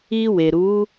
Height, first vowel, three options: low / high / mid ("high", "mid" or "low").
high